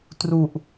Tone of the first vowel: low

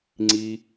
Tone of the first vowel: low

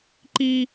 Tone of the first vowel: high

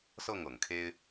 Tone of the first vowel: falling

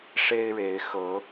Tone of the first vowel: high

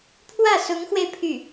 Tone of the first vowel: falling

